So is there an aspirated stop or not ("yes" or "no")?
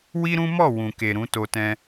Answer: no